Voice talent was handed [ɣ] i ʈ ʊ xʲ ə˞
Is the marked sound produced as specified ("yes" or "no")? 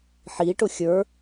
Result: no